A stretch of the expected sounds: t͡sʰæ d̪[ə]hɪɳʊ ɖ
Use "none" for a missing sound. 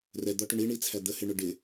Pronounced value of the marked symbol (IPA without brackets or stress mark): ə